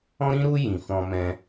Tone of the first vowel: high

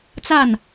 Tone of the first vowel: falling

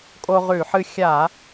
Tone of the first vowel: high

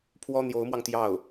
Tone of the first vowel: high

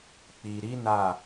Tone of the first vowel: low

